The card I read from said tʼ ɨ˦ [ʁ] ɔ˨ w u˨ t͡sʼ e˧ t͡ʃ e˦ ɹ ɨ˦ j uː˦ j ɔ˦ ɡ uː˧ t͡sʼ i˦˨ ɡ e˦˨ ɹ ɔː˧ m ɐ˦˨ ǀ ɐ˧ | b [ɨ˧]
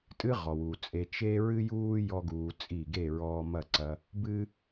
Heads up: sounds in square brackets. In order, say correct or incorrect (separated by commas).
correct, incorrect